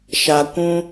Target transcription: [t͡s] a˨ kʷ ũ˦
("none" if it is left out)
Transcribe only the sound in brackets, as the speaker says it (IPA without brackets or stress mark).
ʃ